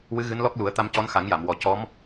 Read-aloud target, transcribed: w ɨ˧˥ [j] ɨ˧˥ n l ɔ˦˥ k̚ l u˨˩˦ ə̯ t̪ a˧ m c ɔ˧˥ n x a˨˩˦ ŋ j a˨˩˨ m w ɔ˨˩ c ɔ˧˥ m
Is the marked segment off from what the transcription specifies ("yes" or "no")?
yes